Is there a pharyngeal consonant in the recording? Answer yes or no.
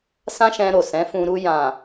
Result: no